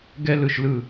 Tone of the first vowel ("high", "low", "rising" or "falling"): high